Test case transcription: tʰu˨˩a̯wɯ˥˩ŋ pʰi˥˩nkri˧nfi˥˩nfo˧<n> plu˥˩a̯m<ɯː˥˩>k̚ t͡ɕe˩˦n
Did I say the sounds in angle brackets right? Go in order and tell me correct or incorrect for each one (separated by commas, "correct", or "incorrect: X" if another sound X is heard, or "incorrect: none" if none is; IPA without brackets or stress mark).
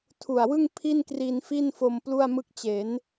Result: incorrect: m, incorrect: ɯ˥˩